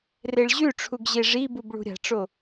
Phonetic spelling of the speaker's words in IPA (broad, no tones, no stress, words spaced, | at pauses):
reɭʑʉʈ͡ʂʰuɡ ʑeʐibub ɭṳɾʲa̤ʈ͡ʂo